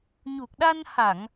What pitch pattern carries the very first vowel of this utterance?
low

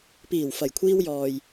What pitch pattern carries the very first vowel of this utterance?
low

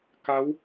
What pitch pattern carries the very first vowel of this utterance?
rising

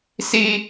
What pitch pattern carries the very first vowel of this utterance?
high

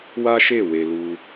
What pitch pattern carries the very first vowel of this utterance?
high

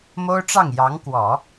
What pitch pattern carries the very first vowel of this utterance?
high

